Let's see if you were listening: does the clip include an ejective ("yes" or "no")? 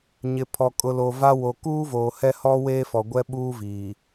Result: yes